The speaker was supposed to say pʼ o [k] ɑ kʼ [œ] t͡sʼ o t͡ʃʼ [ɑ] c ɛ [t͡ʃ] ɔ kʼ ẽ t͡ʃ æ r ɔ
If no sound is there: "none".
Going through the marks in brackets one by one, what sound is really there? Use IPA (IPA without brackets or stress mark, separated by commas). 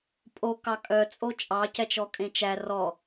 k, œ, ɑ, t͡ʃ